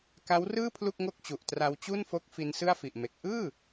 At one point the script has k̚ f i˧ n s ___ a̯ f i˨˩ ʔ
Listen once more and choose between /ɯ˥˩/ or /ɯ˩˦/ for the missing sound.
ɯ˥˩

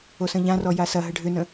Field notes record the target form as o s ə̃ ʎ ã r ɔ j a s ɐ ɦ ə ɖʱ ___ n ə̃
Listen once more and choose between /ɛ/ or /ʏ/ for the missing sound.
ʏ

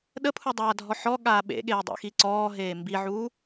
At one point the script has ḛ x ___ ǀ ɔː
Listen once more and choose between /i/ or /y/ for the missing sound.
i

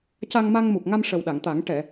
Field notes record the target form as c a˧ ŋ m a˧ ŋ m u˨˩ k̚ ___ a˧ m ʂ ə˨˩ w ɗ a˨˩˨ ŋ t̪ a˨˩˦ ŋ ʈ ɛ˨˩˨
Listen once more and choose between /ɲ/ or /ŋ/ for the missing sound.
ŋ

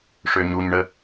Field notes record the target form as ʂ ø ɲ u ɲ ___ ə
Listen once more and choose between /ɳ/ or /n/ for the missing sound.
ɳ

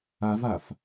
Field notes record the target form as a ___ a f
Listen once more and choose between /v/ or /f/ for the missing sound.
v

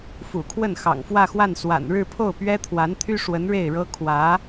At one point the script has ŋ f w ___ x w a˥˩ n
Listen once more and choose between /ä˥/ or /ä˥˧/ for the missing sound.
ä˥˧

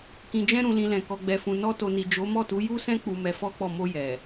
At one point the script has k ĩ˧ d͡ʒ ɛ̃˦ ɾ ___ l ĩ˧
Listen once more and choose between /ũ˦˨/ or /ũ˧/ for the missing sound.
ũ˧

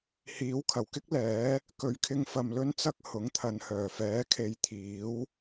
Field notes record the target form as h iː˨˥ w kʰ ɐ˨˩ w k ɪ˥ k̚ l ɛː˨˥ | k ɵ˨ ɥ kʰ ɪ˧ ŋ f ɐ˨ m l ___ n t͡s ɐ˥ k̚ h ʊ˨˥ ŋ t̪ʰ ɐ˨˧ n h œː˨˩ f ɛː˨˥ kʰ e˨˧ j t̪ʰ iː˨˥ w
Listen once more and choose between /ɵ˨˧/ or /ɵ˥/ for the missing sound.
ɵ˥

